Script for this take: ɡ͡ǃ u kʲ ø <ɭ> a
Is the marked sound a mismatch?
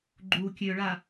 no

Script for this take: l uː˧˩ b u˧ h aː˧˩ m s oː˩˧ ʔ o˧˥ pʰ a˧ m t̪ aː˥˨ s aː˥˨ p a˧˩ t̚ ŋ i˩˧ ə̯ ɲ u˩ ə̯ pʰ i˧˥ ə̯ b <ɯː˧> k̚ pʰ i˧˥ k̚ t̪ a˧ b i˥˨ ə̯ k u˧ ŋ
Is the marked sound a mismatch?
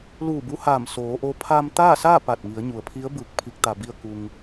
no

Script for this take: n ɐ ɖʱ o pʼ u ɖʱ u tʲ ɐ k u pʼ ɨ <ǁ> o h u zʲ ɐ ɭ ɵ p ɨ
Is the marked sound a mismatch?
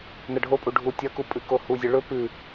yes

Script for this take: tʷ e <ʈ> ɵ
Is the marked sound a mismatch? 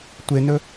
yes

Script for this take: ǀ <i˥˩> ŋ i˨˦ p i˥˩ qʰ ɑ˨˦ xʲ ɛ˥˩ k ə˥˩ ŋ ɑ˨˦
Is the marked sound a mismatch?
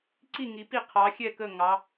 no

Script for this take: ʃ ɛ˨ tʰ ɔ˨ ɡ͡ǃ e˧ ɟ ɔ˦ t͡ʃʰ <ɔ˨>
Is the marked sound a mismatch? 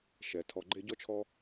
yes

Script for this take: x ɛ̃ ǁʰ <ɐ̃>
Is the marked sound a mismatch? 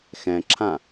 yes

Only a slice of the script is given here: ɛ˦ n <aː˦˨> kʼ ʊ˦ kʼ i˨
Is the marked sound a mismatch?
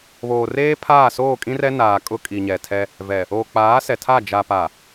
yes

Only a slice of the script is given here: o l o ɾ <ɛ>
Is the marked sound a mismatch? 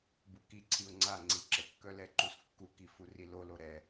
no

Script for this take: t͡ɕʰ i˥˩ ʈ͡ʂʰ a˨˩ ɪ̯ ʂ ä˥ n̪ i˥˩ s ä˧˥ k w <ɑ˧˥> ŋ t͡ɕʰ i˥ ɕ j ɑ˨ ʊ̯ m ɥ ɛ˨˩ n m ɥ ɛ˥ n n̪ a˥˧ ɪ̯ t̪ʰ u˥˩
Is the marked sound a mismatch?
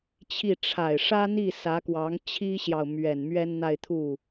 no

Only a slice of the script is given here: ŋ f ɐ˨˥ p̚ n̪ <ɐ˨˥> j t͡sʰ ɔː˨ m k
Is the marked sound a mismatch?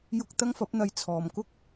yes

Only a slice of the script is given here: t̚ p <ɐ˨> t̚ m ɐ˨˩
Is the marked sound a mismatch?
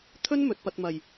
no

